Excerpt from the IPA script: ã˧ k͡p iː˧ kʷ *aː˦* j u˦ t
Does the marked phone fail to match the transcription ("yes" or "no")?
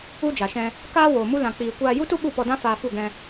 yes